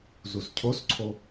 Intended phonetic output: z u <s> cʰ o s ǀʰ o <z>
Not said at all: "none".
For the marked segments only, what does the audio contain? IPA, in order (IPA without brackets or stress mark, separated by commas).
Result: s, none